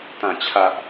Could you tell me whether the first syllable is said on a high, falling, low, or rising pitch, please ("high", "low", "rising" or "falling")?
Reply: low